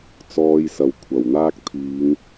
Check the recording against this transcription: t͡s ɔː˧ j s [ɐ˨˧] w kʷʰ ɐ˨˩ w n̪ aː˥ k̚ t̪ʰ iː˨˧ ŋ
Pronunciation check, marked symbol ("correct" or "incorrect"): incorrect